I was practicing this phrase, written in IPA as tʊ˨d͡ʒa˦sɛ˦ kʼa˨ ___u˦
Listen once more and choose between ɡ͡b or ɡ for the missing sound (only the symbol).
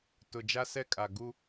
ɡ